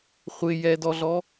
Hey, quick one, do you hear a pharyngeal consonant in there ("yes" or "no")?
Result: no